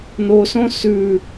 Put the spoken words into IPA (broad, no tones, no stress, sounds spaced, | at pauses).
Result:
n o s õ s ʉ